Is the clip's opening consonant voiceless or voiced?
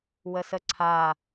voiced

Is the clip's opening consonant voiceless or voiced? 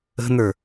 voiced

